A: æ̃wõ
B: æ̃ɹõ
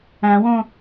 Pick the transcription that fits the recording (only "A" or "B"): A